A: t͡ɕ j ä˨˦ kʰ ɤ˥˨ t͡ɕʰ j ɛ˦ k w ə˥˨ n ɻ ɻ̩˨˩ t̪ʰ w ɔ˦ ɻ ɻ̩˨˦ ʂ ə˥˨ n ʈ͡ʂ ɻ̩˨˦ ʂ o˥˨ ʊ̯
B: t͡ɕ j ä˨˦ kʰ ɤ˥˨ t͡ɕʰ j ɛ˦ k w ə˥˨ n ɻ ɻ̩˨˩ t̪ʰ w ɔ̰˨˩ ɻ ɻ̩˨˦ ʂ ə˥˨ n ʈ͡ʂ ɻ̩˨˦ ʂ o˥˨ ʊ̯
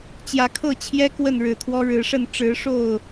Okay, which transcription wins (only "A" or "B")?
A